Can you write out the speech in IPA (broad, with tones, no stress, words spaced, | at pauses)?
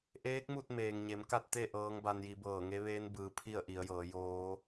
ʔeː˧˥k̚mu˥˨t̚ meː˩ŋ ɲe˩˧mka˥˨t̚t̪e˥˨ ʔɤː˧˥ŋba˧nji˩˧ bɤː˧˩ŋe˧˥ʋeː˧˥nbɯː˩˧ pʰi˥˨ə̯ʔi˩˧ə̯jɤː˩˧joː˧˥